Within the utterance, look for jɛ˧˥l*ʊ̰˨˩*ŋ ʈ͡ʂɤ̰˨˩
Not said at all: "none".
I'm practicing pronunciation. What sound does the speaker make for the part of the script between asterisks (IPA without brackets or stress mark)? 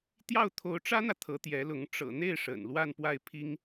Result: ʊ˧˥